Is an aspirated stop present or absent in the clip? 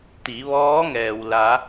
absent